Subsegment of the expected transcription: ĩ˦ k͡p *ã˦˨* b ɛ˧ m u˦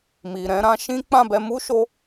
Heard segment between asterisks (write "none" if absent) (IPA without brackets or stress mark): ã˦˨